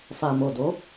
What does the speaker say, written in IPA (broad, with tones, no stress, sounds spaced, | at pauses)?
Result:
f a˨ m o˨ d o˨˦